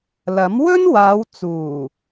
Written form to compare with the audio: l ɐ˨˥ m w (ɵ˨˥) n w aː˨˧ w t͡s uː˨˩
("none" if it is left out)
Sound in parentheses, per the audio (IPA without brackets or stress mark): ɵ˥